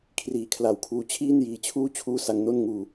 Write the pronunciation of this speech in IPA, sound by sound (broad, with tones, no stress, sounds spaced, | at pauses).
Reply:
kʰ r iː˨˩ kʰ l a˨˩ w kʰ uː˦˥ t͡ɕʰ iː˥˩ n j iː˧ t͡ɕʰ uː˥˩ t͡ɕʰ uː˥˩ s a˧ ŋ n o˥˩ n ŋ uː˧